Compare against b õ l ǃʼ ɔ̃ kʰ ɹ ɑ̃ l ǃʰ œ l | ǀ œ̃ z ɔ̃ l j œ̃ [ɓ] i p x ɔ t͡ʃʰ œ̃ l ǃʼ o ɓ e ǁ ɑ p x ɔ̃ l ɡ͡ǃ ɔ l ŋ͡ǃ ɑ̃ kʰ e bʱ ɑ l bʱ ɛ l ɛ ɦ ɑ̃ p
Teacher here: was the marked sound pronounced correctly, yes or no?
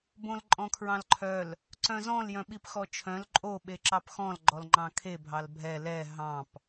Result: yes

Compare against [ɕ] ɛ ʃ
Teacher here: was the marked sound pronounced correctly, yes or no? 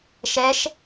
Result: no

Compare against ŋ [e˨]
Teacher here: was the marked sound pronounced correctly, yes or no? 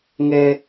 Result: no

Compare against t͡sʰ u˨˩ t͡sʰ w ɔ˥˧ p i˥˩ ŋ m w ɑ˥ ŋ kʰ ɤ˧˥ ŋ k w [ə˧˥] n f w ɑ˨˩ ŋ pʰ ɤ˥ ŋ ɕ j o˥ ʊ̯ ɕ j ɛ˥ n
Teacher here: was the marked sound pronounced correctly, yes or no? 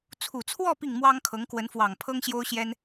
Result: yes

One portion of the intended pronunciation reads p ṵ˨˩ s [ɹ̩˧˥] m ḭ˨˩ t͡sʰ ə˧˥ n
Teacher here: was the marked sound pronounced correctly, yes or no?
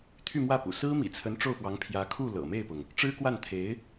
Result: no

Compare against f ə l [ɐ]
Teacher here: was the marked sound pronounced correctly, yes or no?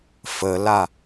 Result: no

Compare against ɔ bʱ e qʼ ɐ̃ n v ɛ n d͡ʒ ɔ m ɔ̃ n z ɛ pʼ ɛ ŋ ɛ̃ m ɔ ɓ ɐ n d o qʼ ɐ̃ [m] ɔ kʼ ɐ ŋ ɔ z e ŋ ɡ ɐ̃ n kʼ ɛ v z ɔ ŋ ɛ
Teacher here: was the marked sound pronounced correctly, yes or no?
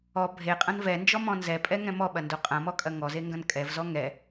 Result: yes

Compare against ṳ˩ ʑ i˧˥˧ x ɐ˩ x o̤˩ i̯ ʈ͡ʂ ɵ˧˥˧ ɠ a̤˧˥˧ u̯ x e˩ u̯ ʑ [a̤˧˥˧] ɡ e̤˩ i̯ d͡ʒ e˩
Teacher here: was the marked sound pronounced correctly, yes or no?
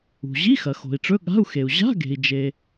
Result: yes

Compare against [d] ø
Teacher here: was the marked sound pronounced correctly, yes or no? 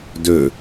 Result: yes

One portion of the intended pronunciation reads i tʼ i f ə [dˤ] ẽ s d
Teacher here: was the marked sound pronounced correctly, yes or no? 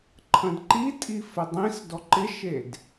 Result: yes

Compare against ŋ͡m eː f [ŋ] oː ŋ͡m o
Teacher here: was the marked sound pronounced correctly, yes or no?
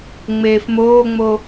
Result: no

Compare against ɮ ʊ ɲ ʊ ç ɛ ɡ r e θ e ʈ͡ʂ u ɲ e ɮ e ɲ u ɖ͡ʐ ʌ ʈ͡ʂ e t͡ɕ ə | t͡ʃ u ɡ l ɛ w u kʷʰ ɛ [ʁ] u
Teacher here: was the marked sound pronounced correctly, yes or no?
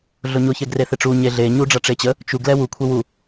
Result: no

